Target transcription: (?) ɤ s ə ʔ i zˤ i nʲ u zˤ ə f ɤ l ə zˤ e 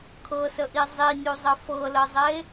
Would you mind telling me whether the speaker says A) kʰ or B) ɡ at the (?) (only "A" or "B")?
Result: A